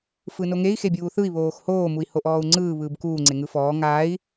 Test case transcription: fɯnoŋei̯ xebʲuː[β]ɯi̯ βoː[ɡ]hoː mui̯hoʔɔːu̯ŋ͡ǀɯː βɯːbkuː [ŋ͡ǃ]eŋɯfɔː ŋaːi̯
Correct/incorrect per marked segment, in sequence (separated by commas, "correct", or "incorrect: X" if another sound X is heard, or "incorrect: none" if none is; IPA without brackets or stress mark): incorrect: θ, incorrect: x, incorrect: ŋ͡ǀ